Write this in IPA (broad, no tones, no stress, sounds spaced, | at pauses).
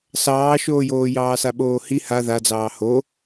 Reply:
s ɑː ʃ oː j oː j ɑː s a ɓ oː h i h a ð a d͡z ɑː h o